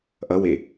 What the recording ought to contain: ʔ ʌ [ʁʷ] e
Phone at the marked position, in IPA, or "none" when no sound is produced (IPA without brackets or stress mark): w